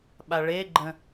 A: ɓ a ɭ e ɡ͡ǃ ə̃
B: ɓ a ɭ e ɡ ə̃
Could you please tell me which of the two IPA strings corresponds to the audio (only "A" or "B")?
A